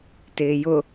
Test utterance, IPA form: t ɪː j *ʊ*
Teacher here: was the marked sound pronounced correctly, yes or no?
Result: yes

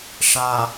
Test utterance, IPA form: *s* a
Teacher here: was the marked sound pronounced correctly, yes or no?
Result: no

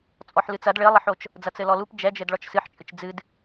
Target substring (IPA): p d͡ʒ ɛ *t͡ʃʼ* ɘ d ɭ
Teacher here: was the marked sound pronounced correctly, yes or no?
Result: no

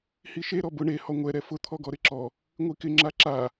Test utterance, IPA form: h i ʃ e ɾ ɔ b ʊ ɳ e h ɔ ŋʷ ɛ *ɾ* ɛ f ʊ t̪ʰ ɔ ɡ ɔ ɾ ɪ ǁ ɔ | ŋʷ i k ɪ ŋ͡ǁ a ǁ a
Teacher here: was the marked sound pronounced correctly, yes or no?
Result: yes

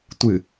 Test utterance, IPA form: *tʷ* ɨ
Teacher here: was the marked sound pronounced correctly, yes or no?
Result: yes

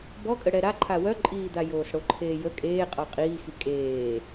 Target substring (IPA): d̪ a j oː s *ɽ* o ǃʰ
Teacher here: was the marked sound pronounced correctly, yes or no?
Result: yes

